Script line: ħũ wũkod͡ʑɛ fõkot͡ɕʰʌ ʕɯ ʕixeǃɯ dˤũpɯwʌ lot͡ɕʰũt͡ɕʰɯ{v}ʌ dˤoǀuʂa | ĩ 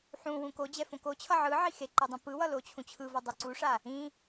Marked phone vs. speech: correct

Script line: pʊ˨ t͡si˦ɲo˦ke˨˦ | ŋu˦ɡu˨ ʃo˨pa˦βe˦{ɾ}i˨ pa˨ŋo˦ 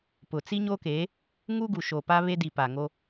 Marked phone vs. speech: incorrect: d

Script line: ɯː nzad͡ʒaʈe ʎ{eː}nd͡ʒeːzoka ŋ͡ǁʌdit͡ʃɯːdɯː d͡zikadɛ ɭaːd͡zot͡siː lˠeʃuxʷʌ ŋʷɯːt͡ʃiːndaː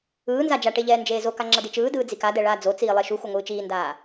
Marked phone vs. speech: incorrect: ɛː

